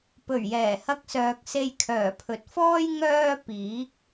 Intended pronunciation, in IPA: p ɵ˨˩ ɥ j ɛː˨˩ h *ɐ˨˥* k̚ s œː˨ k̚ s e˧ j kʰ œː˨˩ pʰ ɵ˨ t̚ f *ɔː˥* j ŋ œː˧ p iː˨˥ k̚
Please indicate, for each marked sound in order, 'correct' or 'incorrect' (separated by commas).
incorrect, correct